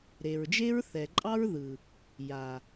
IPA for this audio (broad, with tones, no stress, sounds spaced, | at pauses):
ɾ e˨ ɹ d͡ʒ e˦ ɹ θ ɛ˨ ǃʼ ɑ˦ ɹ ð ɯ˨ | j a˨